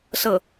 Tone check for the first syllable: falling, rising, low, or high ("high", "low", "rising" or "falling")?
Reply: falling